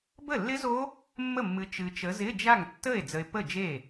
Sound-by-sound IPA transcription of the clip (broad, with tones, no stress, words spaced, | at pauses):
bə˥˩lːɪ˦˥zo˦˥ | mːə˥˩mːɨ˨˦ t͡ʃɨ˨t͡ʃə˨˦ zɪ˧˥˧d͡ʒa˥˩ŋtːə˥˩e̯ d͡zə˨e̯ pə˥˩d͡ʒe˥˩